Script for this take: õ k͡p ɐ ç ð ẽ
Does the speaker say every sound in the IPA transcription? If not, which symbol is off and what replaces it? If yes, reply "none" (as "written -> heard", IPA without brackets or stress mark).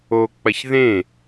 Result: õ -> o